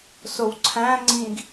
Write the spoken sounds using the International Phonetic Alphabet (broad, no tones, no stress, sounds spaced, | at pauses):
s o w ǀʰ æ̃ ŋ͡ǀ ĩ ɡ